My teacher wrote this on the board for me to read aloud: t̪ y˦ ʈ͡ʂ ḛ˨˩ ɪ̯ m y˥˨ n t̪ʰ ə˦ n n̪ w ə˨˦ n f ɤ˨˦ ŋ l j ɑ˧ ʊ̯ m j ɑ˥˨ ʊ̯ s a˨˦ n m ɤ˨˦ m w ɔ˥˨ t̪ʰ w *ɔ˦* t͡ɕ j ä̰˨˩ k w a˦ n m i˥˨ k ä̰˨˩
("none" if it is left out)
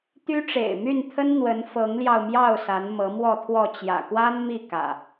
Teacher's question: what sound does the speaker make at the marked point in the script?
ɔ˥˨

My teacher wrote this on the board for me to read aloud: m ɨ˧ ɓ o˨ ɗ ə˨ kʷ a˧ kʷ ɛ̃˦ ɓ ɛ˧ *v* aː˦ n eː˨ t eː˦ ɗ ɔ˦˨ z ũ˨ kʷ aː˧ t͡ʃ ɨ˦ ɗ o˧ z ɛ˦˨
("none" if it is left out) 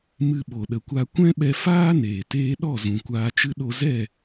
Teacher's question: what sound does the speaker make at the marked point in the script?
f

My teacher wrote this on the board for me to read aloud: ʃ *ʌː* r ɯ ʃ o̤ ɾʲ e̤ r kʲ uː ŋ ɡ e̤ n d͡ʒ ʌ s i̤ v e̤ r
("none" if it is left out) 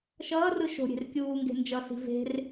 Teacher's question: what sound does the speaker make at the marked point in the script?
ʌː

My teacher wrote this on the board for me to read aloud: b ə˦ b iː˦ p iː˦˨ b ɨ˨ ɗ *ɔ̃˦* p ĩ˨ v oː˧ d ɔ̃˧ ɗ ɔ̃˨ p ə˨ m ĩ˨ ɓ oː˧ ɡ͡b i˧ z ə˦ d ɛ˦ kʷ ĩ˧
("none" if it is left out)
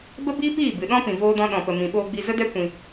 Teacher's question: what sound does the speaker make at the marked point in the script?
ɔ̃˦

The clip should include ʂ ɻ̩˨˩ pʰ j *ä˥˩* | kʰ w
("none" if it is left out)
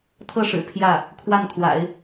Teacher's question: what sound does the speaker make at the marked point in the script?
ä˥˩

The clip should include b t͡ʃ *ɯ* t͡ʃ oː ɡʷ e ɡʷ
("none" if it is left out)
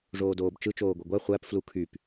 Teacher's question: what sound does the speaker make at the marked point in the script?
ɯ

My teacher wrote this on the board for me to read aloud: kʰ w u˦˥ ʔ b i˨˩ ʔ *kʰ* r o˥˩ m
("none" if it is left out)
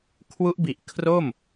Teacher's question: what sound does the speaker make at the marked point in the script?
kʰ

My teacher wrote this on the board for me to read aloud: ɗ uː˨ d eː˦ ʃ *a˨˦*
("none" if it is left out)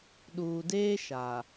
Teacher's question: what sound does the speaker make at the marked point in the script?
a˨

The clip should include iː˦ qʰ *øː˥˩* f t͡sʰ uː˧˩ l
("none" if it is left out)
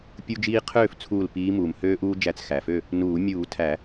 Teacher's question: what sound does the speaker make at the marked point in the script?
øː˥˩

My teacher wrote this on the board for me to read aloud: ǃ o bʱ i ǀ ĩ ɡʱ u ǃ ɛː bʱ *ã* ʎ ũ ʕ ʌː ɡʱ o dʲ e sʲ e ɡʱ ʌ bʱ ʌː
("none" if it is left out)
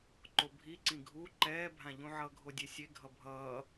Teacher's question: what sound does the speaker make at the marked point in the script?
ã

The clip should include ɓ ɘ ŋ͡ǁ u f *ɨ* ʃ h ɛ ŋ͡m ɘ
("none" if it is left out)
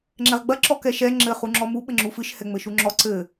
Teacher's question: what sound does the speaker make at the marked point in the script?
ɨ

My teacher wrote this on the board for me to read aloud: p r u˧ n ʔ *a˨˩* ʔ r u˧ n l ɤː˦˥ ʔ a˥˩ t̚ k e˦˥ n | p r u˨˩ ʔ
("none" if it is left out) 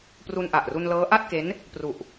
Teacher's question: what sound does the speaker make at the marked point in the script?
a˨˩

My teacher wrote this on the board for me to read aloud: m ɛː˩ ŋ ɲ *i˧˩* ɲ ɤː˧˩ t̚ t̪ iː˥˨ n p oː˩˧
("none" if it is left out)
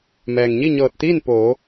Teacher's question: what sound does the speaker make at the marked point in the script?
i˥˨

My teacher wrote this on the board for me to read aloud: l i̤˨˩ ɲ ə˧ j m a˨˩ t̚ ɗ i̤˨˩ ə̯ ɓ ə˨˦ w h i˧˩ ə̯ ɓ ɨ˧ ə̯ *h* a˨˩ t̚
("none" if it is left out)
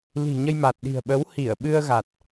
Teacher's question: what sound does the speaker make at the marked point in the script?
ɣ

